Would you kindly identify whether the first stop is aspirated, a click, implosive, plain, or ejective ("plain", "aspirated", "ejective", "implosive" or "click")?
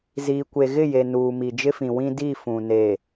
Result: plain